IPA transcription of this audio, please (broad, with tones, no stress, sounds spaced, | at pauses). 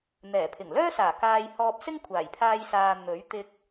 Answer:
n̪ ɛː˨˩ pʰ ɪ˨˩ ŋ l œː˥ s aː˨˩ k aː˧ j h ɔː˧ p̚ s ɪ˥ ŋ kʷʰ aː˨˩ j pʰ aː˧ j s aː˨ n̪ ɵ˨˥ ɥ t̪ ɪ˧ k̚